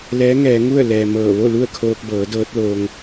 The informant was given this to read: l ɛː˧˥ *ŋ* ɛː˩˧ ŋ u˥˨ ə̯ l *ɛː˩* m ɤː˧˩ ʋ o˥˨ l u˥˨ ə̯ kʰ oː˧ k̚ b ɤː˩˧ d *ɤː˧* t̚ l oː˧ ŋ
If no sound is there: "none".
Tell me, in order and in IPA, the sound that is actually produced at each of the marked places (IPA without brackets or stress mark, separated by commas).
ŋ, ɛː˩, ɤː˧˥